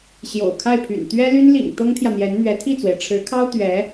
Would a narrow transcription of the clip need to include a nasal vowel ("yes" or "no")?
no